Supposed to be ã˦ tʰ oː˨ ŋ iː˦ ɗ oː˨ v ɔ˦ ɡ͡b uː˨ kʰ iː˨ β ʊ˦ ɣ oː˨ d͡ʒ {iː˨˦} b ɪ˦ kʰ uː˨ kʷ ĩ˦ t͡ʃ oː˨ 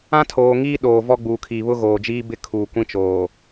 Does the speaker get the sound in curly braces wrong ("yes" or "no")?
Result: yes